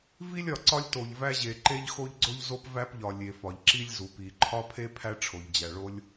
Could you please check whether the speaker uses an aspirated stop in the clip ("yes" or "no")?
yes